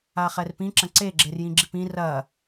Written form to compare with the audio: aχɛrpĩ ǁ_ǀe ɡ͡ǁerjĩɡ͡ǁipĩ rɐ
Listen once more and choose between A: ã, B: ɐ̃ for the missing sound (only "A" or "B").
B